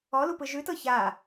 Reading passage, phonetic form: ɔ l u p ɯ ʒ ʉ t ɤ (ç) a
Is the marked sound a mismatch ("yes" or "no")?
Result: no